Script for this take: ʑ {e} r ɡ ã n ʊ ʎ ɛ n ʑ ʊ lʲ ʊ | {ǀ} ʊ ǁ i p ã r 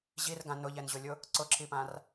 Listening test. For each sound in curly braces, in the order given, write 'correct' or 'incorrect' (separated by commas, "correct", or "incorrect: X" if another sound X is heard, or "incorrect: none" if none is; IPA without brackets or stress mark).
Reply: incorrect: i, correct